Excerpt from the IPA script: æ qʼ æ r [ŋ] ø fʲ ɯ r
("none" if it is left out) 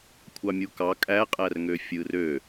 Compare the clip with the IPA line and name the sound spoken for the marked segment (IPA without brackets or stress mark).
ŋ